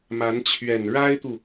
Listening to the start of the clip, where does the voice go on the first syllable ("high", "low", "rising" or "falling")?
rising